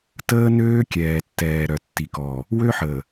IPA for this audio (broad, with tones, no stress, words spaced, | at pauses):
təː˦nøː˦ kʲɛː˨tːɛː˨ ɾœ˨tːi˨kɔː˨ | wø˦ħəː˨